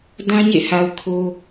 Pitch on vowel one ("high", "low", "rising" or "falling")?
high